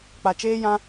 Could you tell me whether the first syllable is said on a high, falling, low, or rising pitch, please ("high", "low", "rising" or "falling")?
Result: low